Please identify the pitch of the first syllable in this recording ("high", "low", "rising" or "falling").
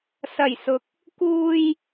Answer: low